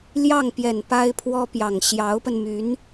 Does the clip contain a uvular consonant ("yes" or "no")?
no